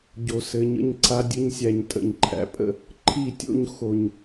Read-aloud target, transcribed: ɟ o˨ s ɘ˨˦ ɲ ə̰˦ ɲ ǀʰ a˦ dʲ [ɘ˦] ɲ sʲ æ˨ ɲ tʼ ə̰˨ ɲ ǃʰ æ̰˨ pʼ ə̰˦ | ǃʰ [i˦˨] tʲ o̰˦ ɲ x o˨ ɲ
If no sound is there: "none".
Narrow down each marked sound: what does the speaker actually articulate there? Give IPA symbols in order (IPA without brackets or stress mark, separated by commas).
ɘ˦, i˦˨